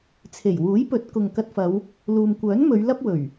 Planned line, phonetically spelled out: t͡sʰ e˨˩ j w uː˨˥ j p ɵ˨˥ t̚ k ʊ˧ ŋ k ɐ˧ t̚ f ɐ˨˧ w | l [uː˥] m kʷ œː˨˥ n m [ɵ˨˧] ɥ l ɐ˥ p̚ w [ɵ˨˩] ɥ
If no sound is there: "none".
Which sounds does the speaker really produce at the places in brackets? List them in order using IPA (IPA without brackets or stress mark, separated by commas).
uː˨, ɵ˨˧, ɵ˨˩